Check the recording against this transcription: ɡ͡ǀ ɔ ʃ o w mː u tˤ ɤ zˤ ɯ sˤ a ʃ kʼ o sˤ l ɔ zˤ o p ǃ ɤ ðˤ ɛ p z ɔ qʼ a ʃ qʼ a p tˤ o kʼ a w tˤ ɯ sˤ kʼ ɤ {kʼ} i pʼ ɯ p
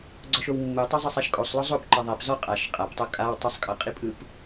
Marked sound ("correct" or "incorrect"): incorrect